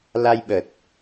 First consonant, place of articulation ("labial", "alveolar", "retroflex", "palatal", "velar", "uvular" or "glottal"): alveolar